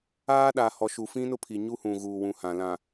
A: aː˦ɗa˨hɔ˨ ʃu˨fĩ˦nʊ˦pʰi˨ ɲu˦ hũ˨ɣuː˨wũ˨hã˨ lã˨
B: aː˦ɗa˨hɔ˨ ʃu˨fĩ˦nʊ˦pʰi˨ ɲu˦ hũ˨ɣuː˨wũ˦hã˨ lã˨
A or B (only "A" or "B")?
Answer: A